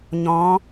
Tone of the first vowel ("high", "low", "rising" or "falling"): rising